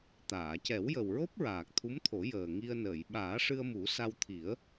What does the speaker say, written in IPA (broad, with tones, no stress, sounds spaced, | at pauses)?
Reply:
t̪ aː˨˩˨ c ɛ˨˩˦ w j ə˨˩ w ɹ o˦˥ p̚ ɹ aː˨˩ k̚ t̪ʰ u˧˥ m t̪ʰ o˨˩˦ j əː˨˩ ŋ i˧ ə̯ n əː˨˩˨ j ɓ aː˨˩˦ ʂ ɨ˧ ə̯ m u˨˩˦ s a˧ w t̪ʰ i˨˩˦ ə̯